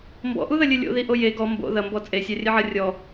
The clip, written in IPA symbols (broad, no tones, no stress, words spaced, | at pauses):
mbɔ̰ʔuðɐlʲɨ lʲo̰ðiʔo je ɡɔ mbo̰ ðɐmbɔ t͡sʼesʲarʲɘʕɐ rʲɔ